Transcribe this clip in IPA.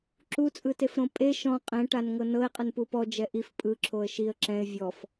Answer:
ǁ u t͡sʼ ɯ t e f ɾ õ pʼ e ʃ ɔ̃ qʼ ɛ̃ ʈ a n ŋ ɤ n ɤ ɪ̯ qʼ ɯ n p u p ɔ d͡ʒ ɛ ʔ i f pʼ ɯ ǁʰ o ə̯ ʃ i ə̯ ǁ ɛ̃ ɪ̯ vʲ ɔ f

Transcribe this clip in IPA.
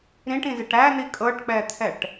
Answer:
ɾ ĩ ʈ ĩ z ɪ ʈ æ n̪ i kʼ ɤ ʈ k͡p ɛ t̪ʰ ɛ ʈ

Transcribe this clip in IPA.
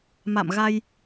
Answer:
m a̰˧˨ m ɣ a˧ j

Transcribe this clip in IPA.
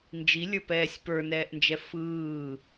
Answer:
n d͡ʒ i lʲ ə˞ p ɛː sʲ p ə˞ n ɛː ʔ n d͡ʒ ɛ f ɯː

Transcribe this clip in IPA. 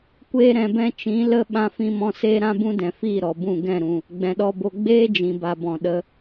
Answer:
kʷ eː˧ ɾ ɛ̃˨ b ɛ̃˧ t͡ʃ ĩ˨˦ l ə˦ ɓ ã˧ f ĩ˧ m ɔ̃˧ s eː˦ ɾ ã˦ b ũ˦ d ɛ̃˨ f iː˦˨ ɾ ɔ˨ b ũ˦˨ ɡ ɛ̃˦˨ ɾ ũ˨ | ɡ͡b ɛ̃˨ ɗ ɔ˧ b o˧ ɡ͡b eː˦ d͡ʒ ĩ˨ b a˨ b ɔ̃˨ ɗ ə˧

